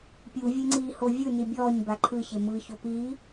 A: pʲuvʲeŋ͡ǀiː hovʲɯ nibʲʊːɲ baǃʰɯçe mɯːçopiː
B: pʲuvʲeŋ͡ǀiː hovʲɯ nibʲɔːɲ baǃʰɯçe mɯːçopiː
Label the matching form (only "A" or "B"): B